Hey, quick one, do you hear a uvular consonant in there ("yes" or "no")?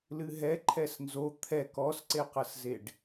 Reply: yes